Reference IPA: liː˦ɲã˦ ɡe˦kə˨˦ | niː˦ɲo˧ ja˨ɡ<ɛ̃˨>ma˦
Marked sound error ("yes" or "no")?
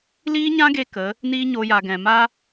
no